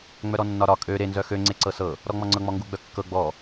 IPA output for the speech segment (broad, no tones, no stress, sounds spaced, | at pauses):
ŋ͡m œ ɾ ɔ nː ɒ ɾ ɒ kʼ ø ɾ e n z œ x ø ŋ͡ǀ e ǀ ɤ s ɤ | ɾ ɔ ŋ͡m ɔ ŋ͡ǀ ɤ ŋ͡m ɔ ŋ ɡ u ɡ͡b œ kː ɤ ɡ͡b ɔ